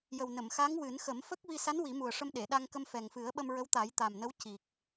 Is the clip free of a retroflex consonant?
no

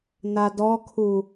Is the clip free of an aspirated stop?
no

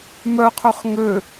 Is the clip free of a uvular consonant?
no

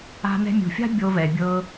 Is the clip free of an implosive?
yes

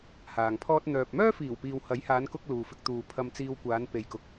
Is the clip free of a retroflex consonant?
yes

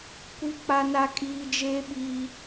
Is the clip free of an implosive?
no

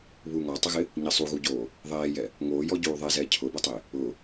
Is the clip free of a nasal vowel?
yes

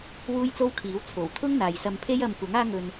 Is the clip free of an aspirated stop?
no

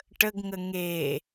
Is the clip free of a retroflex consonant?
no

